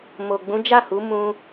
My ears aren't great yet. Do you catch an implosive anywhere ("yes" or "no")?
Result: no